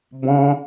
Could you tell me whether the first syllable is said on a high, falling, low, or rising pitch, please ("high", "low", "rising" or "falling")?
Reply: high